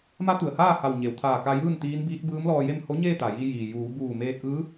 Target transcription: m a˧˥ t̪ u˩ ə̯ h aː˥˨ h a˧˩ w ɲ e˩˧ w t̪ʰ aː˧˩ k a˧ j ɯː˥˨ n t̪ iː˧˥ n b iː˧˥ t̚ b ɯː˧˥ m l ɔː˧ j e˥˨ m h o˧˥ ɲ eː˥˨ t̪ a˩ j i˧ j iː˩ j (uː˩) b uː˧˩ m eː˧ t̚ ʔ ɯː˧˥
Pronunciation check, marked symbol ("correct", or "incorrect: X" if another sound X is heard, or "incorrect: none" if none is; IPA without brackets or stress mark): incorrect: uː˩˧